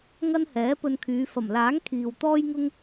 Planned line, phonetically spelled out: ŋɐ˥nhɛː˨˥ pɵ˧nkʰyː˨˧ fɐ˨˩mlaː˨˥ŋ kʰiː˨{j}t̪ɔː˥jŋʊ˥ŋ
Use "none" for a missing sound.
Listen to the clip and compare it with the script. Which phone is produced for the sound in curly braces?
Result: w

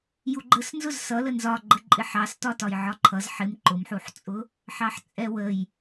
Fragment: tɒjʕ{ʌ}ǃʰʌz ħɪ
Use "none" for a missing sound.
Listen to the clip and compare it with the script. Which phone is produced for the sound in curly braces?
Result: ɒ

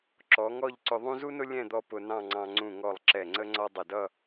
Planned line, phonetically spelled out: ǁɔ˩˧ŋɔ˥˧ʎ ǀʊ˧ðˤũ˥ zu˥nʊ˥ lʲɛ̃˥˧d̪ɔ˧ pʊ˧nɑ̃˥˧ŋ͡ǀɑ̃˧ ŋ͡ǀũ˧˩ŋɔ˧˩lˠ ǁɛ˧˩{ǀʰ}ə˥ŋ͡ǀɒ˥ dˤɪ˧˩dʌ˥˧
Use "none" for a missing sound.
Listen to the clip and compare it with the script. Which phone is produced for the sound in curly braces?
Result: ŋ͡ǀ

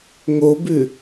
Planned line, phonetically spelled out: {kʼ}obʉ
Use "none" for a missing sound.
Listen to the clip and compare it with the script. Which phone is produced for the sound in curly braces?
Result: ŋ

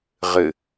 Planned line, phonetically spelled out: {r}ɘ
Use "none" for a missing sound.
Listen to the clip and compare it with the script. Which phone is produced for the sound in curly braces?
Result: ʁ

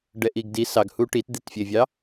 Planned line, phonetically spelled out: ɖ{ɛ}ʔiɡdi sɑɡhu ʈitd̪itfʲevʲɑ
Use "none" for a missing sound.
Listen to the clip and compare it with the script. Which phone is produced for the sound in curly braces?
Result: ɛ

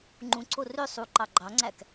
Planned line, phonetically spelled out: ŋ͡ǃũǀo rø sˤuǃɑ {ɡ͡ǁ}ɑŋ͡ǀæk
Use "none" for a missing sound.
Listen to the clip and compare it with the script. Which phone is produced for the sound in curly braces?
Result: ɡ͡ǃ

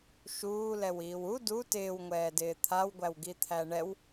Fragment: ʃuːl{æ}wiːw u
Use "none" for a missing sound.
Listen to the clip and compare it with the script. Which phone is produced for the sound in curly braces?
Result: ɛ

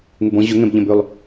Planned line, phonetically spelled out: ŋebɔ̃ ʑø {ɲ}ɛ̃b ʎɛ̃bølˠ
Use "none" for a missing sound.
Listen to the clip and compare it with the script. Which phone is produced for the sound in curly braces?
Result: ŋ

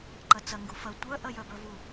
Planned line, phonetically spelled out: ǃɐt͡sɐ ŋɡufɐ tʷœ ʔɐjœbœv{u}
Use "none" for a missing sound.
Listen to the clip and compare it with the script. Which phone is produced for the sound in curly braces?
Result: u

